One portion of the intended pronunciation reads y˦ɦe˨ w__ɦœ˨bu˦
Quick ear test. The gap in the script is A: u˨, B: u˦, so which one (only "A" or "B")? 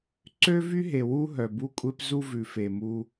B